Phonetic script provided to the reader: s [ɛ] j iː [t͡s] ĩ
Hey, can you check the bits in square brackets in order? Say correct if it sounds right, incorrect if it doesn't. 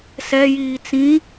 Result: correct, correct

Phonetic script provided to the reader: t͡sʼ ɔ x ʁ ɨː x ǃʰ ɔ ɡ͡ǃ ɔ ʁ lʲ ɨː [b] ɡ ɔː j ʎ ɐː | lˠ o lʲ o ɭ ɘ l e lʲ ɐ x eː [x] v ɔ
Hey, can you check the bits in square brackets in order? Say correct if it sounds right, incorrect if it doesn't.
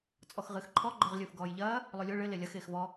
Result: incorrect, correct

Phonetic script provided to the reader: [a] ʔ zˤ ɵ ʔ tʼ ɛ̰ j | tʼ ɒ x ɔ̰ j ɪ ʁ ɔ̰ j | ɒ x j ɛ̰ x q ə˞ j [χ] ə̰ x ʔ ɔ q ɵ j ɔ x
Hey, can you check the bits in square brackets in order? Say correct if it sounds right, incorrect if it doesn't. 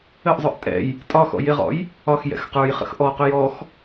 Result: incorrect, correct

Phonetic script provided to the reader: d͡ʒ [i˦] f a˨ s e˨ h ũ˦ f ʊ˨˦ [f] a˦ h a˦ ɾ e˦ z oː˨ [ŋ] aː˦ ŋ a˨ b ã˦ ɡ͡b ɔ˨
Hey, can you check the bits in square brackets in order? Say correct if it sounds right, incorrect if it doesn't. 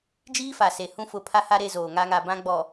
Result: incorrect, incorrect, correct

